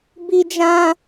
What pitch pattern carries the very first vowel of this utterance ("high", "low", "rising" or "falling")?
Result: high